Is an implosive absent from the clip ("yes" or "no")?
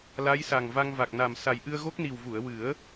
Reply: yes